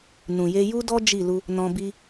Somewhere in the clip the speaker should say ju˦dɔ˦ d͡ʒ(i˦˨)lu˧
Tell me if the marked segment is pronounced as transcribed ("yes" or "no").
yes